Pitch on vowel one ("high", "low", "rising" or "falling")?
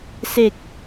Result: low